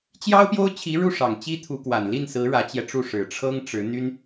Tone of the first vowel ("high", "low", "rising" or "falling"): high